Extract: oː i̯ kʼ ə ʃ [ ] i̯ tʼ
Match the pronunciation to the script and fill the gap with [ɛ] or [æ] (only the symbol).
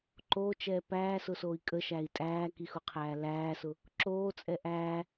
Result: æ